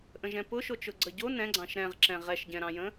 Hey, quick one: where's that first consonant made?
throat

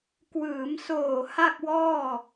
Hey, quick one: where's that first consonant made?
velum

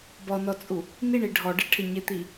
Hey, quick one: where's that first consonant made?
lips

